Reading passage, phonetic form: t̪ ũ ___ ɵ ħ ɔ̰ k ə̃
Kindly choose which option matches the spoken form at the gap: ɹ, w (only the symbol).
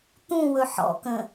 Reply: w